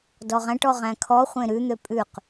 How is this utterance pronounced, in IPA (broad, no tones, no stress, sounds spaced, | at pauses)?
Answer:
d ɔ ʁ æ̃ ʈ ɔ ʁ æ̃ kʰ ɔ χʷ ẽ ɾ ʉ n̪ ø pʼ ʉ q